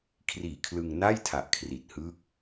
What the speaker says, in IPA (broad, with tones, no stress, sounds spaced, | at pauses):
kʰ r iː˨˩ kʰ l ɯ˧ ŋ n a˥˩ j tʰ a˨˩ ʔ kʰ r i˨˩ t̚ h ɯː˦˥ k̚